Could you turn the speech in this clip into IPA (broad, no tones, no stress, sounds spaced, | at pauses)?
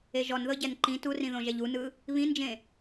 e ʒ ɔ n ð ɤ ɟ ɛ n ǃ ĩ t u r ĩ ð õ ʒ ɛ ʎ u n ɯ | β ĩ n d͡ʒ ẽ